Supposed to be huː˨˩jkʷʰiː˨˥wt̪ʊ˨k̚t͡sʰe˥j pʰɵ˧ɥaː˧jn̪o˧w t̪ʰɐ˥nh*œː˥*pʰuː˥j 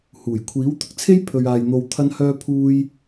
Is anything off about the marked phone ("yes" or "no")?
no